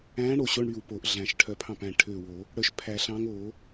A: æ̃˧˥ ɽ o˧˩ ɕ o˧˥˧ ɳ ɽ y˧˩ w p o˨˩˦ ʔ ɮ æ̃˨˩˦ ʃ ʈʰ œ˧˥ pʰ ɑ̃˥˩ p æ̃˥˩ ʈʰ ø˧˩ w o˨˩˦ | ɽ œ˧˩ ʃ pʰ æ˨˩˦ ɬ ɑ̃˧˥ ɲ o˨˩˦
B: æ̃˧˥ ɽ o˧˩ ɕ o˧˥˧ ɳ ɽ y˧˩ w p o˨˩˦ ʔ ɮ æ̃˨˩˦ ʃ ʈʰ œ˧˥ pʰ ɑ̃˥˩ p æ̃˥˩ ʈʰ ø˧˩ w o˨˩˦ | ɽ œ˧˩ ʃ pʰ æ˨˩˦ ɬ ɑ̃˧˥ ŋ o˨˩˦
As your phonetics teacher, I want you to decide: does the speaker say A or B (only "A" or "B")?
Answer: B